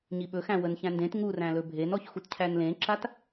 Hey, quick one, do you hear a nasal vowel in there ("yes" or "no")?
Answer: yes